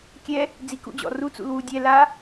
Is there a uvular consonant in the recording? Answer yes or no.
no